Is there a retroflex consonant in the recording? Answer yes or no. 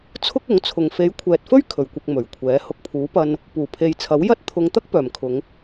no